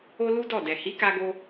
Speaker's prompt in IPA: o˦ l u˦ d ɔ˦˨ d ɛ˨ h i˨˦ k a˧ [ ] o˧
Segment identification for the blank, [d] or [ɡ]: ɡ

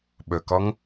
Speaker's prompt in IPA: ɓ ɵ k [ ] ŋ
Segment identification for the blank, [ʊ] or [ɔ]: ɔ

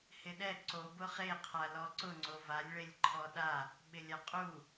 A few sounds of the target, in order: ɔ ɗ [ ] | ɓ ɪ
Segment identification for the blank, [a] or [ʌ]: a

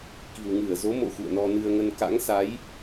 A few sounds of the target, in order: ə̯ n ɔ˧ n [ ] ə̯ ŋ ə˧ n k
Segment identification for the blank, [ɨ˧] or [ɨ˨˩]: ɨ˧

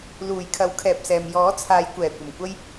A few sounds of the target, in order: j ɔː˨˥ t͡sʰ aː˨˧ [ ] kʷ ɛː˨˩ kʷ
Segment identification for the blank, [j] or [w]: j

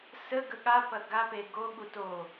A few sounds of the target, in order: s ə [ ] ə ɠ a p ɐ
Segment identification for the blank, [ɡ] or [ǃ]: ɡ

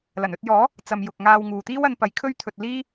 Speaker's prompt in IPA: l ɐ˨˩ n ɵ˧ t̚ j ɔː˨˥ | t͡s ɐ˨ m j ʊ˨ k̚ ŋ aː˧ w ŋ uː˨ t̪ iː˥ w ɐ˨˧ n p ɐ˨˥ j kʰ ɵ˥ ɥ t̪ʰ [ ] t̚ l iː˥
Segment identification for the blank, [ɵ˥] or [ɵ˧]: ɵ˧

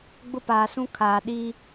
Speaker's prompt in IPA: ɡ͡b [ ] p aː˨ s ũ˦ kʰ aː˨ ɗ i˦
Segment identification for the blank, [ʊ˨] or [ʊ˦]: ʊ˦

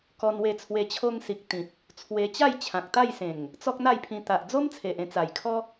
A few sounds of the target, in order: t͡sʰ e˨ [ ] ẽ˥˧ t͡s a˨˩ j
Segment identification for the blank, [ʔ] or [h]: ʔ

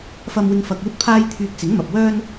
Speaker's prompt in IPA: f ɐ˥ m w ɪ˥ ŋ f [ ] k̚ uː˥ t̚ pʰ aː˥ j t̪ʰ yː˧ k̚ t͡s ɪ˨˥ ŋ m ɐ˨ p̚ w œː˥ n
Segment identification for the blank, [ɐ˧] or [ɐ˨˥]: ɐ˧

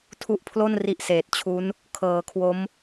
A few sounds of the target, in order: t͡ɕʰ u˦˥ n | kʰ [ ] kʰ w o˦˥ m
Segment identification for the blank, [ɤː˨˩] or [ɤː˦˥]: ɤː˨˩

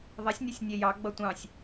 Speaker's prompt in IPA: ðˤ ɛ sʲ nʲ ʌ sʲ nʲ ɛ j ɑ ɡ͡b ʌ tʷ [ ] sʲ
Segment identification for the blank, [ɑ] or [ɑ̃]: ɑ̃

